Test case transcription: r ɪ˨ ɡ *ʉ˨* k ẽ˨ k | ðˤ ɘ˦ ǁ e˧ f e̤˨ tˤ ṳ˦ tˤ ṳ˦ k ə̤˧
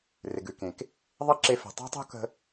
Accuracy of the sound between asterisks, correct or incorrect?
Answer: correct